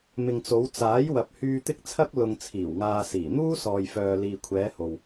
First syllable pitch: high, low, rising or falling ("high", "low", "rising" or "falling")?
low